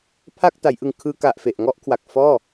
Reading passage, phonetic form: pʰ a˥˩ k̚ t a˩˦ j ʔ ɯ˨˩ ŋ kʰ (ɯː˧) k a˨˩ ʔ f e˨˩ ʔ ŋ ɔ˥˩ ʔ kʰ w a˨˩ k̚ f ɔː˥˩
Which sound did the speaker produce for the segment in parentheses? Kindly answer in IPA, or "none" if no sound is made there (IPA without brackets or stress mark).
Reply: ɯː˧